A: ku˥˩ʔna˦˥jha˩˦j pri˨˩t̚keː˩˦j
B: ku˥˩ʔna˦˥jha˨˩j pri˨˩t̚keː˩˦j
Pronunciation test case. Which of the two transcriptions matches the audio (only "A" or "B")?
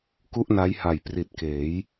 B